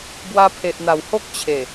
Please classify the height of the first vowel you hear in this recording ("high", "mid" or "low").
low